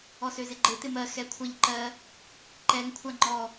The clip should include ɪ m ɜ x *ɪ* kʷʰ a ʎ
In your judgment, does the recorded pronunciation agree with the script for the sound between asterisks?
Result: no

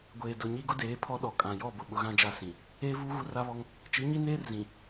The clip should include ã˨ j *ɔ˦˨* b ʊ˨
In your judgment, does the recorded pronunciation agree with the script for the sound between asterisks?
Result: yes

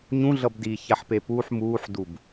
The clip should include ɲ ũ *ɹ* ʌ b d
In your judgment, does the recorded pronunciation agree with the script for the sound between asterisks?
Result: no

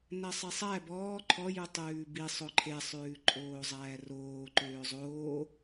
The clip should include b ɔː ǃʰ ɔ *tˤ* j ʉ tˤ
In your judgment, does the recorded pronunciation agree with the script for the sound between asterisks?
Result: no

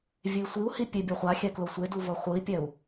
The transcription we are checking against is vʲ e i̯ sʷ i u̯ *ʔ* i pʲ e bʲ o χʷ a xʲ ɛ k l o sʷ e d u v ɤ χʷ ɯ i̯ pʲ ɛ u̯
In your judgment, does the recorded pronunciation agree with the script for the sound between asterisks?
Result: no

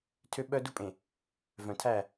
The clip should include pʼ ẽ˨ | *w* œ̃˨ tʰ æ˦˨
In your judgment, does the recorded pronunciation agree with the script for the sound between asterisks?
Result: no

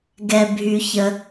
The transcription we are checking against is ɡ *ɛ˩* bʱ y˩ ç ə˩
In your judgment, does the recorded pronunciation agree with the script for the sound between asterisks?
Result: yes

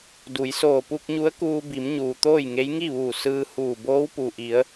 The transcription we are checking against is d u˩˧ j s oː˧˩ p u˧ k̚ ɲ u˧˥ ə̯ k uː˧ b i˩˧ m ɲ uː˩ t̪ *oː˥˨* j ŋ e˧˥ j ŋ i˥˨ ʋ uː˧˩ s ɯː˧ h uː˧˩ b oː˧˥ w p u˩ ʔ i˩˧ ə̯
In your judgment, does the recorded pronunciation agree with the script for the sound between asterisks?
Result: yes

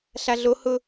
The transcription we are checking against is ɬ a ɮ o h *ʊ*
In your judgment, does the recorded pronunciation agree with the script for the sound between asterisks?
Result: yes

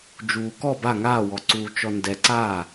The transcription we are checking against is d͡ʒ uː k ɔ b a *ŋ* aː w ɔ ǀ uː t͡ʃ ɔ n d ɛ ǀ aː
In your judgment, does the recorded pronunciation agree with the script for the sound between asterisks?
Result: yes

